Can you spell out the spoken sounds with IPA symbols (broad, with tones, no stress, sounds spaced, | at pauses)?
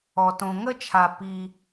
ɔ˨ t õ˧ ŋ ə˦ t͡ʃʰ a˨ p i˧